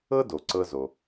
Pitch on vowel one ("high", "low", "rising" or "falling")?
high